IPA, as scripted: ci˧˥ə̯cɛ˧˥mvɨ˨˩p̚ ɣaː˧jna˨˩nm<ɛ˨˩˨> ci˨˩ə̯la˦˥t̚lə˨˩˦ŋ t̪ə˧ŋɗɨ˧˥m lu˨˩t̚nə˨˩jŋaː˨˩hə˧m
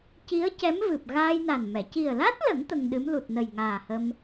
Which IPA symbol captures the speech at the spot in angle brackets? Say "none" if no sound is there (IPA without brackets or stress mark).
ɛ˨˩˨